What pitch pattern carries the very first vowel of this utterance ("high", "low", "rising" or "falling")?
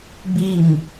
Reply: falling